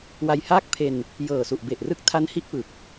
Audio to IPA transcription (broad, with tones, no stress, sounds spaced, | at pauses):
w a˧ j h aː˥˩ k̚ pʰ e˧ n | j ɤː˨˩ s u˨˩ ʔ b e˨˩ ʔ r ɯ˦˥ k̚ tʰ a˦˥ n h i˦˥ ʔ p ɯ˨˩ k̚